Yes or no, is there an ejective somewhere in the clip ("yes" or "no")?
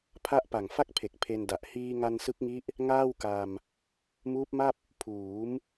no